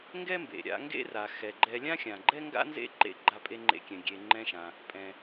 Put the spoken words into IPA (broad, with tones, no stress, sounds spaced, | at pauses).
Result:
ŋ ɡ ɛ˥ m b ḛ˩ ɾʲ a̰˧ ŋ ɡ ḛ˥ r a˩ x ɛ˩ ɡ͡ǃ ɛ˧ lʲ ã˥ xʲ ã˩ ɡ͡ǃ ɛ˥ ŋ ɡ a̰˥ n z ḛ˥ ǃ ḛ˧ ɡ͡ǃ a˧ pʼ e˧ ŋ͡ǃ ḛ˧ kʲ ɛ̃˩ ɡʲ e˩ ŋ͡ǃ ɛ̃˧ ʃ ã˩ | pʼ ɛ̃˩